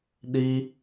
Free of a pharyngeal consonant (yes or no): yes